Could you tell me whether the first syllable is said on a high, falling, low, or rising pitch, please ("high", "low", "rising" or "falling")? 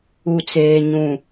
low